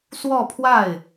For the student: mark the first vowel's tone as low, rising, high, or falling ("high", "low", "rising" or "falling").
falling